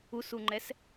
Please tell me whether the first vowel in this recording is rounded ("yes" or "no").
yes